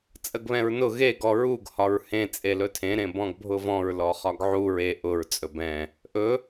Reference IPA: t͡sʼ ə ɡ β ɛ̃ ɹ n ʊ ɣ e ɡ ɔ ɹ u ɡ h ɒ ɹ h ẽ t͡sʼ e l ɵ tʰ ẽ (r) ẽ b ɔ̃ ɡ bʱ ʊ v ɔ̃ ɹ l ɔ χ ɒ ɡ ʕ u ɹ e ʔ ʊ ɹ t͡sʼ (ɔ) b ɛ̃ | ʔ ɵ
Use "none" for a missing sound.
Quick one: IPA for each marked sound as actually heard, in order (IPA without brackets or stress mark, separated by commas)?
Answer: ɾ, ɵ